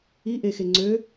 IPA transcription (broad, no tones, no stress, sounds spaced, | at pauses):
i ʔ e x e ŋ͡ǀ ø